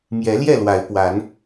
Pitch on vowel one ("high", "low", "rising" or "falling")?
rising